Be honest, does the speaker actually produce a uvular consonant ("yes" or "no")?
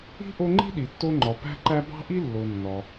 no